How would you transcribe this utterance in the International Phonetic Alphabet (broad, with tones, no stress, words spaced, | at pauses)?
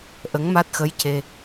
ʔə˧˥ŋma˦˥t̚xə˧˥jce˧